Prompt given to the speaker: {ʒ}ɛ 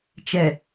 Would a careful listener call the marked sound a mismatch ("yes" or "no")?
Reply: yes